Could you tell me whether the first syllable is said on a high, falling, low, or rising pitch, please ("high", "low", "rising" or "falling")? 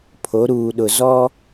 rising